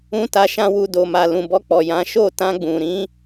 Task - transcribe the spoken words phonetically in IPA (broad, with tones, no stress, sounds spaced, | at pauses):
ũ˦ t a˧ ʃ ã˧ w u˨ d o˨ m a˨ l ũ˨ b ɔ˧ k͡p ɔ˨ j ã˨˦ ʃ o˦˨ t ã˧ ɡ͡b ũ˨ ɾ ĩ˧